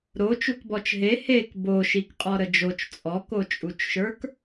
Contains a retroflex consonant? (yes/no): no